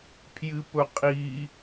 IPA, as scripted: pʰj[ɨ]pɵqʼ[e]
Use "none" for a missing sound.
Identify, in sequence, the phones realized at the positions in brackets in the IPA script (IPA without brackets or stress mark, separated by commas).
ɨ, i